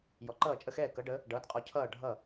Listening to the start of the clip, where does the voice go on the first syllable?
rising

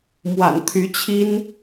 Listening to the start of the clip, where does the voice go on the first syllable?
low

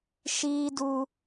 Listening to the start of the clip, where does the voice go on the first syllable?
high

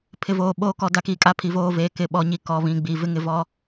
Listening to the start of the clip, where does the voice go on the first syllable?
low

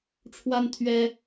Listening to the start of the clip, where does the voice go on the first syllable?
high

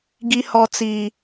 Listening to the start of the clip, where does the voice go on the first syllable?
high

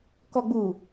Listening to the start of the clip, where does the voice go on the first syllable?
low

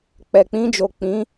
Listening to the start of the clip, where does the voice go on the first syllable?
low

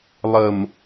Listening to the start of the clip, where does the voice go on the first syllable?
low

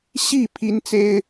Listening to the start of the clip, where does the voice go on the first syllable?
falling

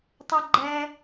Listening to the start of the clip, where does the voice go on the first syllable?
high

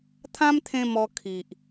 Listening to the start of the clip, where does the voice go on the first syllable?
high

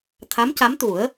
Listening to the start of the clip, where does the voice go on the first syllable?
rising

